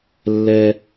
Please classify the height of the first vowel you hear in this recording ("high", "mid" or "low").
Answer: mid